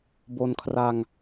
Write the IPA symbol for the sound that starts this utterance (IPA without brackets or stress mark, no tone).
b